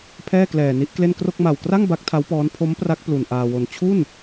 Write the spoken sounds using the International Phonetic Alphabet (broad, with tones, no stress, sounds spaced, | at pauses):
pʰ ɛː˥˩ k l ɛː˨˩ n i˦˥ ʔ k l e˥˩ n k r o˥˩ k̚ m a˨˩ w k r a˥˩ ŋ b a˦˥ k̚ tʰ a˦˥ w p ɔː˦˥ n pʰ o˦˥ m p r a˦˥ k̚ p l u˧ n ʔ aː˧ w o˧ n t͡ɕʰ u˥˩ n